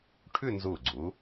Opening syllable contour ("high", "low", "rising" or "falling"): falling